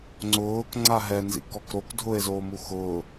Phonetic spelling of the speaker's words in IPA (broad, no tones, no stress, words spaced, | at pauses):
ŋ͡ǀʊːkŋ͡ǀa ɦɛnzḭkɔk ɾok dʱʊe̯zoːmu xʊː